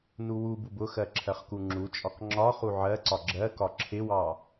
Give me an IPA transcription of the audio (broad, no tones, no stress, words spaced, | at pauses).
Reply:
nuwubub ʊxɜ ǁʰɜχkuŋ͡ǁut͡ʃʼɒk ŋ͡ǁɒ χuʕɜǀɒ ɡ͡ǁɜkɒ ǁʰɪwɑ